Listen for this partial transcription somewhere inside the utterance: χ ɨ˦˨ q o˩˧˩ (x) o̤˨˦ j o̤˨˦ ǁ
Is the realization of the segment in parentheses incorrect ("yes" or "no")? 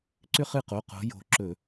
yes